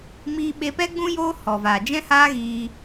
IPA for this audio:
m iː˧ ɓ e˧ p ɛ˦ ɡ͡b ũ˦ j oː˦ h ɔ˨ v aː˨ d͡ʒ ɛ̃˦ h aː˦ ɣ iː˧

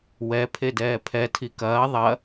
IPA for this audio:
w ɛ pʰ e d ɛː pʰ ɛ tʰ i k ɐː ðˤ ɐ

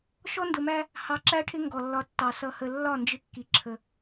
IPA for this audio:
ʃ ɔ˦ n d ʊ˨ m æ˦ | h ɑ˨ ǁ æ˦ ʈʰ ɪ˦ ŋ ɡ ɔ˨ lː ɒ˦ tː ɑ˨ s ʌ˨ h ə˨ lː ɒ˦˨ n d͡ʒ ɪ˦ kː i˨ ǁʰ ə˨

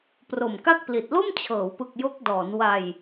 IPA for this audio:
p r o˨˩ m k a˥˩ k̚ p l i˨˩ t̚ l o˥˩ m t͡ɕʰ ɤː˩˦ w p ɯ˨˩ k̚ j o˦˥ k̚ d ɔː˩˦ n w a˧ j

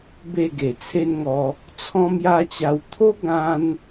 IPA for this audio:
b e˥˧ ɡ e˨˩ t͡sʰ e˦ n ŋ ɔ˧ | t͡sʰ ɔ̃˦ m j a˦ t͡ɕ a˧ w t̪ʰ o˦ ɡ ã˦ n

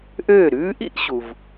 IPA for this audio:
ʔ øː˥˩ ɾ ʉː˥ ʔ ḭ˥ ʔ ɕ u˩ v

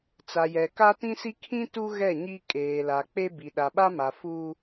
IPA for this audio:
t͡s a˨ j ɛ˨ k a˦ t ĩ˦ s i˦ kʰ ĩ˦ t u˦ ɣ ɛ˦˨ ɲ i˦ kʼ eː˨ l a˨ k͡p e˦ b i˨ ɗ a˨ ɓ a˦ m a˨ f u˦

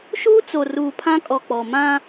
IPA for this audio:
ʃ uː˦ t͡s o˨ r uː˨ pʰ ã˦ kʼ ɔ˨ k͡p ɔ˨ m ã˦

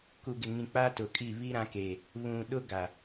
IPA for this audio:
k u˨ ɡ ɪ˨ ŋ ĩ˨ k͡p a˦ t ʊ˨ kʼ i˦˨ β i˦ ɾ ã˦ k e˨ | β ũ˨ ɗ ʊ˦ ɡ a˨

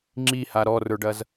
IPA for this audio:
ŋ͡ǁ i h a ɾ ɔ r ə˞ ɖ ɐ z

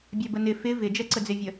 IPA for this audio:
bʲ ɛ b ə n ɪ f ɪ v ɪ d͡ʒ ɛ ǀ ə d͡z ɪ vʲ ə

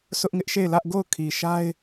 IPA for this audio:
s ʊ˦ ʔ ŋ ɪ˦ ʔ ʃ e˦˨ ɪ̯ l ä˦ ʔ ɡ o˦˨ ʊ̯ kʰ i˨ ʃ a˦ ɪ̯

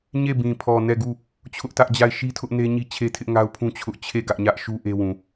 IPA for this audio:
ɲ e˦˨ b ĩ˨ pʰ ɔ˨ n ɛ˦˨ ɡ u˦˨ | t͡ɕʰ ʊ˦ ʔ t ä˦ ʔ d͡ʑ a˦˨ ɪ̯ ʃ i˦ tʰ ʊ˦ ʔ n e˦ ɲ i˦ t͡ɕʰ e˦ tʰ ɪ˦ ʔ ŋ a˦ ʊ̯ pʰ ũ˦ t͡ɕʰ ʊ˦ ʔ t͡ɕʰ e˦˨ ɡ ä˦ ʔ ɲ ä˦ ʔ ʃ u˦ ʔ e˦ w ũ˨

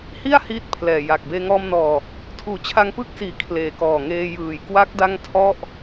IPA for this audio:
h i˥˩ a̯ h iː˥˩ t̚ pʰ l ɛː˨˩ j a˨˩ k̚ b eː˧ ŋ ɔː˧ m n ɔː˨˩ | tʰ uː˨˩ t͡ɕʰ a˧ ŋ p ɯ˥˩ k̚ s iː˨˩ kʰ l eː˨˩ k ɔː˨˩ ŋ eː˧ j ɯː˨˩ j k w a˦˥ k̚ d a˥˩ ŋ tʰ ɔ˥˩ ʔ

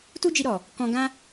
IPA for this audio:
t u˦ d͡ʒ i˧ ɾ ɔ˨ | k ɔ̃˧ ɡ ã˦

